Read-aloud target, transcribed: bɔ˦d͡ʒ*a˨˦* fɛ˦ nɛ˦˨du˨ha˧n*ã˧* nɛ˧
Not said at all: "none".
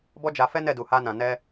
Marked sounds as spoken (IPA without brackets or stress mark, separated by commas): a˧, ã˨